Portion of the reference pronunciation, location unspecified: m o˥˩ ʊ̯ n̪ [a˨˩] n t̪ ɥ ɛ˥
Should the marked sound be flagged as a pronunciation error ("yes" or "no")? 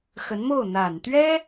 no